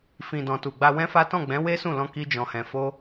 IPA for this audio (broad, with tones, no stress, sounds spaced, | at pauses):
f ĩ˨ d ɔ̃˨ t u˨ ɡ͡b a˧ w ɛ̃˦ f a˦ t ɔ̃˦˨ ɡ͡b ɛ̃˨˦ w e˦ s ũ˦˨ l ɔ̃˧ k i˦ d͡ʒ ɔ̃˧ h ɛ̃˧ f o˦